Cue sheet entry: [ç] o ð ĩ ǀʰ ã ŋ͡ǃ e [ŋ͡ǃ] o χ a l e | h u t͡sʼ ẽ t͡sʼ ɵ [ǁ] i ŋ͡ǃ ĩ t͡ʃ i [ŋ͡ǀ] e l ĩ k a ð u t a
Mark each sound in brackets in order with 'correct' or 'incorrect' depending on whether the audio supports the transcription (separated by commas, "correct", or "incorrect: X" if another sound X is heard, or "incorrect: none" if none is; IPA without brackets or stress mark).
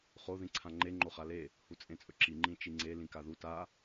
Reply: incorrect: χ, correct, correct, correct